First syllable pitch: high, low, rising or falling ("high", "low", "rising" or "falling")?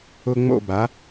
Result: high